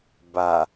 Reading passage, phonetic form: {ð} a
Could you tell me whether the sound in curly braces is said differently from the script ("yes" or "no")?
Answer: yes